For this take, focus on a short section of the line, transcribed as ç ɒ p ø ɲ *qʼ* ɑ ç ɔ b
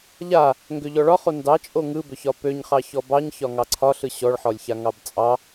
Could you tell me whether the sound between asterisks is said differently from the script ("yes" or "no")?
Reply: yes